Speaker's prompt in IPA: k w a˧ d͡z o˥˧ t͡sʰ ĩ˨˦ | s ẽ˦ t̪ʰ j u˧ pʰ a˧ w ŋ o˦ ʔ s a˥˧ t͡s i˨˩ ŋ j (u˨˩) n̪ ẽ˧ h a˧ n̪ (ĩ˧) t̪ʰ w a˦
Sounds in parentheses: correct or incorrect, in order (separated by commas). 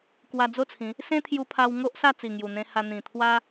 correct, incorrect